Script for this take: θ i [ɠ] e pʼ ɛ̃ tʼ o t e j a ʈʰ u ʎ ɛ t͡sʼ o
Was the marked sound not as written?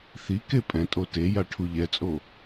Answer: yes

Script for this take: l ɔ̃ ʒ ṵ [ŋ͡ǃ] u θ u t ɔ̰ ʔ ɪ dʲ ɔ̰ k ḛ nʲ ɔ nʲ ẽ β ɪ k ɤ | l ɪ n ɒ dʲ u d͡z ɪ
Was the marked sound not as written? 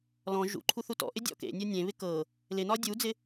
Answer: yes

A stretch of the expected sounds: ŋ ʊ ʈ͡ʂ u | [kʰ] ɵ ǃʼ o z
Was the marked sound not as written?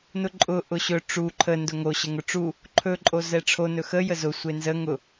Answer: yes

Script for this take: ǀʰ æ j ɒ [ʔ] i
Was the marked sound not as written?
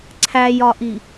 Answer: no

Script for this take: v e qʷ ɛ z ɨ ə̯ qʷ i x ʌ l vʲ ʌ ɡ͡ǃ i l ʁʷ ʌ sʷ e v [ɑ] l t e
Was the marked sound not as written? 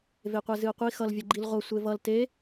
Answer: yes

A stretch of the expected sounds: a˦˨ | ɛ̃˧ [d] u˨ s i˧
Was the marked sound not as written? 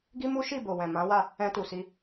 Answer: yes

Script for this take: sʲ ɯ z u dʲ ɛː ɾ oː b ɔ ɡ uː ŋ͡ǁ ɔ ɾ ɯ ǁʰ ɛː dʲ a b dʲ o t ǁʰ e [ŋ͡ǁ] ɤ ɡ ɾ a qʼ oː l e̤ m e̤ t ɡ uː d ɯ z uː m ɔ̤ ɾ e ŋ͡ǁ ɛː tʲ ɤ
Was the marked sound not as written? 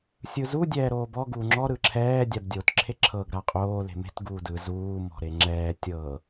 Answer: yes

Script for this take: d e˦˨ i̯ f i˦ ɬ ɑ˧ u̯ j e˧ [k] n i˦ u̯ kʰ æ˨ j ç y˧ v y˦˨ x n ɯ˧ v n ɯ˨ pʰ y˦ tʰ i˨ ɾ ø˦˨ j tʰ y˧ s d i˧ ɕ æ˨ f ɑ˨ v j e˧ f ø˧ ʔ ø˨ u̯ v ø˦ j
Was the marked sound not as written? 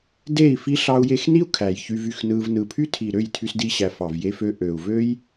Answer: yes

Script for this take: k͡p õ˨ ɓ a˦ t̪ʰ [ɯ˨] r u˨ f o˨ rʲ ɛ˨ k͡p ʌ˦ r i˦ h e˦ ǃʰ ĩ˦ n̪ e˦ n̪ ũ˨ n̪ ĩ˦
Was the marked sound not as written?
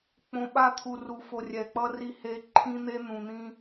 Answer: yes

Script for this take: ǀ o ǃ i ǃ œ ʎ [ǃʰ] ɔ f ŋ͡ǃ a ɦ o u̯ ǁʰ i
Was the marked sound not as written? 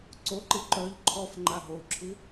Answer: no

